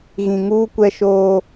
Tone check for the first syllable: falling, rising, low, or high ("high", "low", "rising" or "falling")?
low